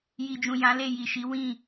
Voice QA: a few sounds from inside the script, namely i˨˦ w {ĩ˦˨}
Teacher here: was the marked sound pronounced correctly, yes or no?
yes